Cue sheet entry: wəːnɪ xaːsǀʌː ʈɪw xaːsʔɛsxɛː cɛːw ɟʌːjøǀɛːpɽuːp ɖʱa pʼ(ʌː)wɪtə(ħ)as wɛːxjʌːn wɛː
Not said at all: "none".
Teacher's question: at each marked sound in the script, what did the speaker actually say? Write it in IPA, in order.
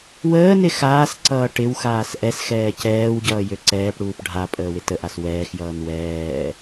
əː, ʔ

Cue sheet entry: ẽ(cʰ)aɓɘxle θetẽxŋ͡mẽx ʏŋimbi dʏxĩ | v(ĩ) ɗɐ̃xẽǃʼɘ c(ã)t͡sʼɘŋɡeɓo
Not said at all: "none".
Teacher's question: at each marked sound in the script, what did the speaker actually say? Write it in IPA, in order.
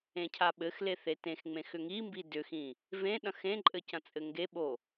cʰ, ẽ, ɐ̃

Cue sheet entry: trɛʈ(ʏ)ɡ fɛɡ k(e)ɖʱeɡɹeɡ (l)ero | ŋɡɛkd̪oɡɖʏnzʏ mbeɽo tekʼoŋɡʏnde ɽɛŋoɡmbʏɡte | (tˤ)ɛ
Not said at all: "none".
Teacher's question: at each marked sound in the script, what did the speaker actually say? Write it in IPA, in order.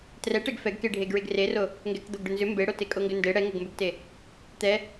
ɛ, e, r, t̪

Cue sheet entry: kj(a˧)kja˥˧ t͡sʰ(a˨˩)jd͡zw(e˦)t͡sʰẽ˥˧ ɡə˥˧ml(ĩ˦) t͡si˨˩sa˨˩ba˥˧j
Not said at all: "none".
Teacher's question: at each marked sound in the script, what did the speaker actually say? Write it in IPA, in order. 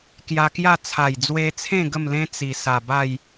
a˧, a˨˩, e˧, ẽ˦

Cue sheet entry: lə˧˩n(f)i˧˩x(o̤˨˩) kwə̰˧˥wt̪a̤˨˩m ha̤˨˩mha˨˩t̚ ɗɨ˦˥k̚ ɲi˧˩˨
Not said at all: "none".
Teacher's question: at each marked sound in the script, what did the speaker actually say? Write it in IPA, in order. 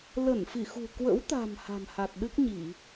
f, ṳ˨˩

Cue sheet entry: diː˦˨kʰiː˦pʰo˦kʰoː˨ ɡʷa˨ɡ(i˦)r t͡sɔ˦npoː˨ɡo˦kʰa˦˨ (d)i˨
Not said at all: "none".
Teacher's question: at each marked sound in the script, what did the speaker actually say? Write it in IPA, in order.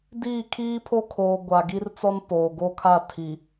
i˦, tʰ

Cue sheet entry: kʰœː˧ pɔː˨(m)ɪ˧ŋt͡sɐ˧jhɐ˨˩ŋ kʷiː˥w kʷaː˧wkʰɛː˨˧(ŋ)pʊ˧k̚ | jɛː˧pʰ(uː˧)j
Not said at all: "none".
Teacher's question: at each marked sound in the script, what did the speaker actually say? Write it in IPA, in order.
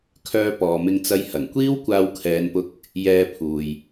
m, n, uː˨

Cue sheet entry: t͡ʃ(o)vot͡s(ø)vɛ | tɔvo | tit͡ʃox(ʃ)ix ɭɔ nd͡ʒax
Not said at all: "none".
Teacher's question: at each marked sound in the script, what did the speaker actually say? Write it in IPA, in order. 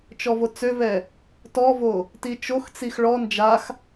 ɔ, ø, t͡s

